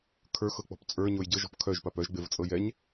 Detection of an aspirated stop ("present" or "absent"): present